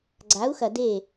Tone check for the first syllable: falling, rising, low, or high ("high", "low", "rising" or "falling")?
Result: rising